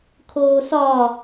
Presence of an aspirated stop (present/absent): present